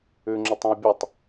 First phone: ʉ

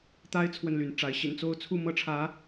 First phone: t̪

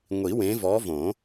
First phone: ŋʷ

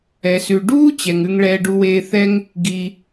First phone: ɛ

